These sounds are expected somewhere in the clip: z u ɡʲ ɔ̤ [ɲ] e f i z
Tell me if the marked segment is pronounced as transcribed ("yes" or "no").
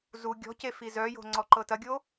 no